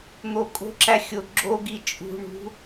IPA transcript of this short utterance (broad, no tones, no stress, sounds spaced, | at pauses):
n̪ o kʼ o̤ ǁ æ xʲ o ɡ͡ǁ o ɡ i t͡ʃʼ ṳ ɳ ṳ